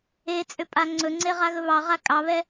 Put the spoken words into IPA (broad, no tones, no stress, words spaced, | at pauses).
et͡sʼʏ pʼaŋ͡ǀɵŋ͡ǀe ʁaɣɵβɑʁa kʼɑβɛ